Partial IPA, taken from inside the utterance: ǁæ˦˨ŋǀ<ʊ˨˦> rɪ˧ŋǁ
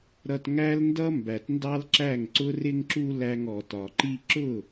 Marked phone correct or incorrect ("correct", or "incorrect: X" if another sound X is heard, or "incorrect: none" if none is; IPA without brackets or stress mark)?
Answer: incorrect: ʊ˦